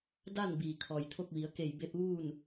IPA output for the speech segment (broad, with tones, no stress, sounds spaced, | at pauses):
d a˥˨ n b iː˩ kʰ ɔː˩ j t̪ʰ o˥˨ k̚ ʋ i˩˧ ə̯ k e˧˩ j b e˧ p̚ ʋ uː˥˨ n